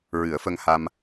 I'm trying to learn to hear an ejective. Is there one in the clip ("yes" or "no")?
no